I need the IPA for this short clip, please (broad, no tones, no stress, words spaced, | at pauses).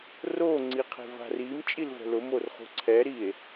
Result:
ro ŋ͡ǀiqʰe̤va̤rim t͡ʃʼilvɛ̤lʊ morχṳǀʰɛ ɾie̯